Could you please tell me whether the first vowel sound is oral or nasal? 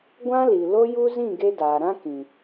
nasal